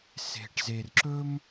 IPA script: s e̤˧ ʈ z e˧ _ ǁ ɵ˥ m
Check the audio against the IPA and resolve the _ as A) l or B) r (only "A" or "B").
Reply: B